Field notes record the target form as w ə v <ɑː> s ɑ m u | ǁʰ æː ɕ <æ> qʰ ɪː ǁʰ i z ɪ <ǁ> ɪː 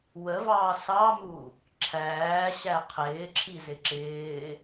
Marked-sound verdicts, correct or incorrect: correct, correct, correct

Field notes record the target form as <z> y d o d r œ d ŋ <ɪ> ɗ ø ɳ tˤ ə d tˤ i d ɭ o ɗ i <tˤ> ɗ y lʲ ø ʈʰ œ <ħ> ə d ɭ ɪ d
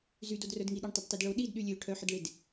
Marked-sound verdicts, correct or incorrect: correct, incorrect: i, incorrect: d, correct

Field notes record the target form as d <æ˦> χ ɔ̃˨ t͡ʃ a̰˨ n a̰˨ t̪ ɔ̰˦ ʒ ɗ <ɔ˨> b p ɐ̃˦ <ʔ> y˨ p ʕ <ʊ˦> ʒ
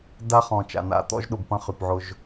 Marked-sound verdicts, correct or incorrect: incorrect: a˦, incorrect: ʊ˨, incorrect: χ, correct

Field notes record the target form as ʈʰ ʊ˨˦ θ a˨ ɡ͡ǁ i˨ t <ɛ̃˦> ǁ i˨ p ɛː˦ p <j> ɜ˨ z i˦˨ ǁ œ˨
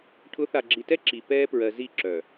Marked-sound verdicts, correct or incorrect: incorrect: ɛ˦, incorrect: ɹ

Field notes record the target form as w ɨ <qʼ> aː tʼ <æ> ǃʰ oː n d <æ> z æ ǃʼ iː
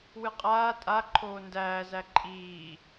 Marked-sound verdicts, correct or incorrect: correct, incorrect: a, incorrect: æː

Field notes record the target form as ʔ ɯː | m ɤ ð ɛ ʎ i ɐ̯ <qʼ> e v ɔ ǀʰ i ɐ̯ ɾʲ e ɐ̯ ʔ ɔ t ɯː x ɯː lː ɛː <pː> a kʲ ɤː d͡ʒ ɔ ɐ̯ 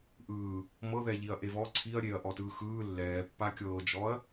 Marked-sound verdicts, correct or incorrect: incorrect: ʔ, correct

